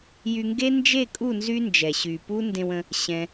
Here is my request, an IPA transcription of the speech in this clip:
jy˧ŋɡe˦ nd͡ʒe˦˨kʼu˦˨ nzy˦nd͡ʒɛ˨ ɕy˨ pu˦ ndẽ˧wə̃˧ | ɕɛ̃˦

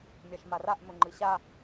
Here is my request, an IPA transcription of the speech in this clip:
mʲaʃmaraʔ mɵŋ͡ǃɨɕa

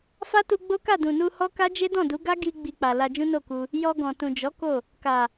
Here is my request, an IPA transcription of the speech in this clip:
fa˦tu˧ɡ͡bo˦ka˦˨ dũ˨nu˧ hɔ˦ ka˦d͡ʒe˦dɔ̃˦˨du˨˦ ɡa˦ ɡi˧ ɡ͡bi˧k͡pa˨ la˧d͡ʒũ˦no˦˨ku˧ | jɔ˧ɡɔ̃˨ tũ˨d͡ʒɔ˨˦ ko˦˨ | ka˨

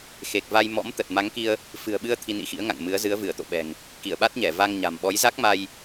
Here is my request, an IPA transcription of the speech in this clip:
xe˨˩k̚va˧jmɔ̰˧˥m t̪ə˨˩t̚ma˨˦ŋki˧ə̯ | fɨ̤˨˩ə̯ɓɨ˧ə̯ t̪ʰi˧nḭ˧˥xḭ˧˥ə̯ ŋa̰˧˨ŋmɨ˨˦ə̯ zɨ˨˦ə̯vɨ˧˩ə̯t̪o̰˧˨ɓɛ̤˨˩ŋ | ki˧˩ə̯ɓa˦˥t̚ɲɛ˧˩ va˧ŋɲa̤˨˩m ɓɔ˨˦jza˦˥k̚ma˧j

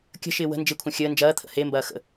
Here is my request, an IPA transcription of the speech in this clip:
kʲə̤ʃɪː wə̤ nd͡ʒɪkʷʰɐ̃ xʲəː nd͡ʒɐːt̪ʰə̰ hembɐː xə̰

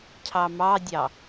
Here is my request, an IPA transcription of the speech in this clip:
cʰɑmɑdʲɑ

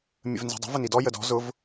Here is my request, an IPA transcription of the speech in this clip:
mʲə̰vnzi̤dˤə̤ vənidɔ jədɔ̤ zʊv

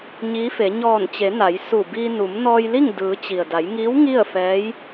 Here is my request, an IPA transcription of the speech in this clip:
ɲiː˧˥fe˩˧ ɲɔː˧˩nt͡ɕe˩˧ na˩˧j su˧˩ biː˧ nu˩˧m nɔː˧jli˥˨ŋ dɯː˩˧ t͡ɕi˩ə̯ da˩˧jŋiː˧˥w ŋi˥˨ə̯fɛː˧˥j

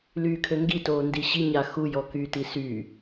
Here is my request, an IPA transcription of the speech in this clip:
lyːkʰøŋɡitoː ndiɕi ɲaxujɔ kyːtisy

